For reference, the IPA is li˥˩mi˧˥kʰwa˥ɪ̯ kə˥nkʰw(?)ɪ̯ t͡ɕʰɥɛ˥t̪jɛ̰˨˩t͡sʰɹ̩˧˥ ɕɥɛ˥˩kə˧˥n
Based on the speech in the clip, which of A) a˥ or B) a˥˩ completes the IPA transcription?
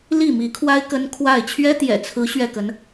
B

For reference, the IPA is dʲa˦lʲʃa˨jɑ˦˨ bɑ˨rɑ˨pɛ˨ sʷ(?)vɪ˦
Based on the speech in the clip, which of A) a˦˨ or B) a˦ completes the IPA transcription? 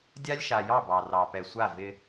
A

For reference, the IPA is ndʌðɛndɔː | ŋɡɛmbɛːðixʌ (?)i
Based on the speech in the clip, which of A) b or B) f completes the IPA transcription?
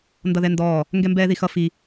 B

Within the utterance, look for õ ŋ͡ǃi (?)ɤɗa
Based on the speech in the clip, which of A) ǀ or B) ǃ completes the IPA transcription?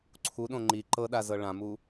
B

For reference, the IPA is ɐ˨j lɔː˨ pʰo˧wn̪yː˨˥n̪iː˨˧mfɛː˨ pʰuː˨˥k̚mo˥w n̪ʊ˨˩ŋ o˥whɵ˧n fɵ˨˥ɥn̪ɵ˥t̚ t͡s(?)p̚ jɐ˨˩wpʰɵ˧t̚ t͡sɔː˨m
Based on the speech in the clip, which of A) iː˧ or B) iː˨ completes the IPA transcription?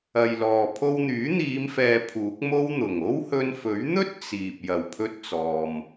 B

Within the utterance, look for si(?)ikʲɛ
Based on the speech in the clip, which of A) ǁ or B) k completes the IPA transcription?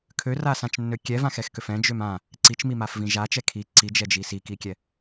B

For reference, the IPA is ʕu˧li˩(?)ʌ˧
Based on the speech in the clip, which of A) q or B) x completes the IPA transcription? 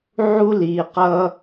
A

